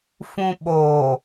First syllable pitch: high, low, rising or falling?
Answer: low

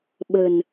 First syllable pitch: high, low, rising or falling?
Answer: low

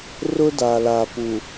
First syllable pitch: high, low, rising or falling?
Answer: high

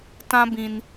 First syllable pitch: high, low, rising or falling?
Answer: high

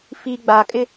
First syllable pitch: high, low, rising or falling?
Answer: low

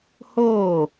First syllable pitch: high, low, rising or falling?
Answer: falling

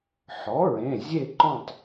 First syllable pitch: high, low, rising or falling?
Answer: rising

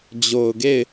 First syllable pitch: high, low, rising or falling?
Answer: low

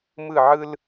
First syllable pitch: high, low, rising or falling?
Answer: falling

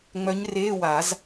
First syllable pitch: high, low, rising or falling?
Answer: rising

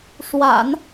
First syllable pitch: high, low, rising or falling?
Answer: low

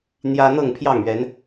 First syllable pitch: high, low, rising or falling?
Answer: high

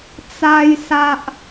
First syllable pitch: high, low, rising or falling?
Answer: high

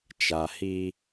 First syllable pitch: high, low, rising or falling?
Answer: low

